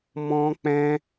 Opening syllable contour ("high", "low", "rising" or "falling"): high